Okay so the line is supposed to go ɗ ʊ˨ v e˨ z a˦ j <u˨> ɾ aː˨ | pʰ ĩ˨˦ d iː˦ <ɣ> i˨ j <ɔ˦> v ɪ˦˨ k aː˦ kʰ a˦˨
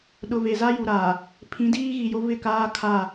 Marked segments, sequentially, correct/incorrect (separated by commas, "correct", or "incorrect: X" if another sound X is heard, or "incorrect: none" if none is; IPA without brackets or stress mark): correct, correct, incorrect: o˦